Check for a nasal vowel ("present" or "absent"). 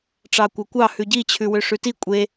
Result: absent